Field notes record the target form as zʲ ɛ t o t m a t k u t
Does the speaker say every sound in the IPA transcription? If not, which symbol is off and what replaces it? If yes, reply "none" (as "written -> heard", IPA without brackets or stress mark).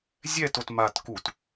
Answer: none